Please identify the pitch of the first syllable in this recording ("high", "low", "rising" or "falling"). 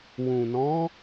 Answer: low